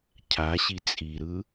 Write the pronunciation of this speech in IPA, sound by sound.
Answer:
cʰ a ɕ i t͡sʼ i ɾ ɯ

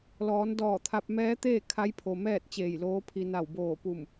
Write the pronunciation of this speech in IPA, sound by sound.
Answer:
l ɔː˩˧ n d ɔː˧˩ t̪ʰ a˧ p̚ m ɛː˧˥ t̪ eː˥˨ kʰ a˧˥ j pʰ o˩ m ɛː˥˨ t̚ t͡ɕ eː˧˩ j l oː˧˥ pʰ i˧ n a˧˩ w b oː˧˩ p u˧˩ m

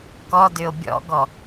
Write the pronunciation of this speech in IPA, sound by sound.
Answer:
k ɔ d ʏ o̯ bʲ ɔ̰ ɡ ɔ

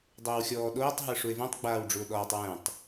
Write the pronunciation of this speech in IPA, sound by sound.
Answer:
dˤ əː w xʲ ɔː ɗ oː tˤ ɦ ə˞ ʂ u e̯ v ũ tˤ ɡ͡b aː w ɖ͡ʐ u o̯ ɗ ɔː tˤ w ɛ̃ tˤ

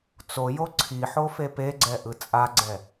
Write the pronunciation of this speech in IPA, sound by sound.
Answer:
t͡s o j o ǀʰ i ħ o f e p e ɡ͡ǀ ɛ ʔ ɯ t͡sʼ a ɡ͡ǀ ɛ

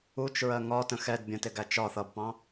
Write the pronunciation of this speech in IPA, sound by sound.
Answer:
u t͡ʃ ɹ ɜ ŋ ɒ t ə̃ x ɛ d bʲ ə̃ t ɪ ɡ æ t͡ʃ ɒ θ ʌ b p ɑ̃

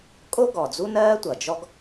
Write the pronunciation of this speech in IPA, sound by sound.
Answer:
kʼ o˥ ɡ ɔ˩ d͡z u˥ n ɜː˥ tʷ ʌ˩ d͡ʒ ɔ˥ ɡ

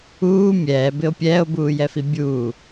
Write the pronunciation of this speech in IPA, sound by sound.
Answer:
uː mʲ ɛː b ɪ o̯ pʲ ɛː o̯ b uː j ɛ f i bʲ uː

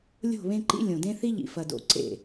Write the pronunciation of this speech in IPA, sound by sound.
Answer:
lʲ o̤˦˨ β ẽ˦ ǃ ḭ˦ lʲ õ˨ d ẽ˦ θ i˦ ʎ ḭ˨ f ɐ˨ d o̰˨ ǀ ḛ˨

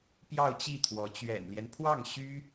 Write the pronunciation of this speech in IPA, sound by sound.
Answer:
p j ɑ˥˧ ʊ̯ t͡ɕ i˥˩ t̪ʰ w ɔ˧˥ t͡ɕ ɥ ɛ̰˨˩ n l j ɛ˦ n pʰ w ɑ˥˩ ŋ ɕ y˥

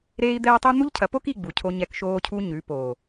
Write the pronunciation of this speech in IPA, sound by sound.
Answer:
ɾ eː˦ i̯ d̪ ɛː˦ tˤ u˦ n̪ u˦ ʎ cʰ ɐ˨˦ p o˦ k i˦˨ ɡ͡b u˨ cʰ o˦ ɲ ɛ˦ k ʃ oː˦ cʰ u˦ ɲ ʉ˨˦ p oː˨

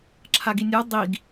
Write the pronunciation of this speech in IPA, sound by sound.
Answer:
ǁʰ a ɡ i nʲ a dˤ i ɡ

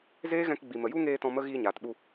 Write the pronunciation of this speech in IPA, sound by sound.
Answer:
z eː˦ ɣ ɛ̃˧ k ɡ͡b i˨ m ə˨ j u˦ ŋ eː˧ t ɔ̃˧ m ə˦ ɣ iː˧ ɲ aː˨ t ɓ u˧

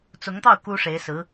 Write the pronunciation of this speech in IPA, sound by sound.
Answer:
t͡s ʊ˧˥ ŋ t̪ ɑ˥˩ ʊ̯ k u˥ ʂ e˧˥ ɪ̯ s ɹ̩˧˥

